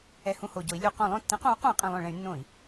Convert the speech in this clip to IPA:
ɛ˧˩˧ h ũ˦˨ h o˧˩˧ ɟ o˩˧ i̯ lʲ u˧˩˧ q õ˧˩˧ lˠ õ˦˨ tː ĩ˨˥ q õ˨˥ u̯ q ũ˧˩˧ i̯ qʼ ĩ˧˩˧ lˠ œ̃˧˩˧ ɭ ɛ̃˩˧ y̯ nː õ˧˩˧ i̯

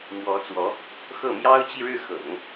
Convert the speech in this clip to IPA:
m w ɔ˧˥ t͡s w ɔ˧˥ | x ɤ˥˩ m j ɑ˥ ʊ̯ t͡ɕ i˥˧ ɻ ɻ̩˥˩ x ɤ̰˨˩˦ ŋ

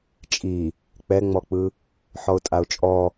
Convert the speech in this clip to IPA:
t͡ʃʼ i | k͡p ɛ ŋ͡m ɔ k͡p ɯ | ħ ɔ ʊ̯ tʼ a ʊ̯ t͡ʃʼ ɔ

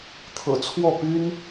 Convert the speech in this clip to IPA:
t̪ʰ ɤ̰˨˩ t͡sʰ w ɔ˥˩ p y˥ n

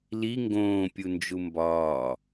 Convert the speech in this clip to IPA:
l i ŋ ɡ õː pʲ u n d͡ʒ u m b ɒː

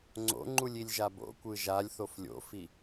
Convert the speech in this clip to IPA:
ŋ͡ǀ o̰ ŋ͡ǃ u lʲ i lʲ ʒ a b o̰ kʷ ɯ ʒ a lʲ θ o f lʲ o̰ f i

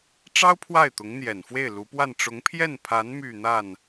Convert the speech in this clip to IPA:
ʈ͡ʂ ɑ˥ ʊ̯ pʰ w a˥˩ ɪ̯ t̪ ʊ˧˥ ŋ n̪ j ɛ˨˩ n f w e˥˩ ɪ̯ l u˧˥ p w a˥˩ n ʈ͡ʂ ʊ˧˥ ŋ pʰ j ɛ˥˩ n pʰ a˧˥ n m y˥˧ n̪ a˥˩ n

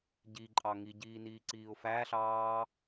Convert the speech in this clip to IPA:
ɟ i ǃʼ ɑ ŋ i ɟ iː n iː ǀ iː ʊ̯ f æ ɬ ɑː

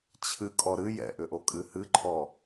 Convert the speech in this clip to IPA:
t͡ɕʰ ɨ kʼ ɔ ɾ ɨ j ɛ̰ ʔ ʏ ʔ o kʼ ɨ h ɨ ǃʰ ɔ

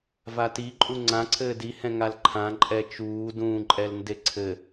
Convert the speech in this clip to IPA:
v a t i ǃʼ u ŋ͡ǀ ã ǀʰ ɘː d i h ɛ̃ ŋ a l ǃʰ ã ǃʼ ɛ t͡ʃ uː d ũː ǃʼ ɛ l n d e ǀʰ ɘ

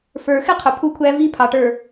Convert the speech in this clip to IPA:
f ə˞˨ x ɪ˦ qʰ ʊ˨ pʰ u˦ kʷʰ æ˦ v i˦ pʰ ɑ˨ ʈ ə˞˨

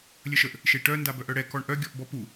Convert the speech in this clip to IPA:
lʲ ə ʃ ə ʔ | ʃ e ʈ œ n d a b œ ʔ œ ɽ ɛ k ɔ ɳ ʔ œ ɡʲ ɔ ʔ b ɔ p u

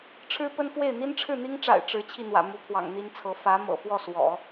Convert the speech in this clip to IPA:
ʈ͡ʂʰ ɻ̩˥ p ə˥ n f w e˥˩ ɪ̯ n̪ i˥ n ʈ͡ʂʰ ɻ̩˥˩ n̪ i˥ ŋ ʈ͡ʂ a̰˨˩ ɪ̯ ʈ͡ʂ ɻ̩˧˥ t͡ɕʰ i˥˩ n̪ w ä̰˨˩ m u˧˥ pʰ w ɑ̰˨˩ ŋ n̪ i˥ n t͡sʰ ɤ˧˥ f ä˧˥ m ɤ̰˨˩ f w ɔ˥˩ s w ɔ̰˨˩˦

